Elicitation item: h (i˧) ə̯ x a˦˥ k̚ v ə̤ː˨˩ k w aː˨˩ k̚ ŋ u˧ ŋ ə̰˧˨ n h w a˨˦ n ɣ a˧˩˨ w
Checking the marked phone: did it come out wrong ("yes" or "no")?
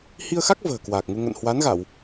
no